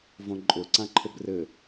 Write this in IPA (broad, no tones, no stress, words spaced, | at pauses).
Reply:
võǃʼʊ ǀãǃʰʊbrɘ